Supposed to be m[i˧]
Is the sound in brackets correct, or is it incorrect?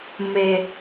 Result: incorrect